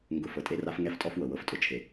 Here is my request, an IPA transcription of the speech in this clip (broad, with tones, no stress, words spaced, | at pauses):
ŋɡʊ˨ fɤ˨tʼe˦ra˦f ŋɛ˦ftʼɔ˦fwɤ˨ wɤ˨ftʼʊ˨t͡ʃʰe˨